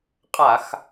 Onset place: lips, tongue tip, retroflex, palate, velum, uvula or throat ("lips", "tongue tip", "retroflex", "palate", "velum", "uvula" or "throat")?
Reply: uvula